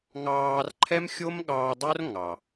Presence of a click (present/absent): present